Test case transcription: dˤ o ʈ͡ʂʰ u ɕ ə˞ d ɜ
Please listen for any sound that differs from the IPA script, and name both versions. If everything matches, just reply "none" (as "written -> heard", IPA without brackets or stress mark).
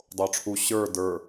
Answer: ɜ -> ə˞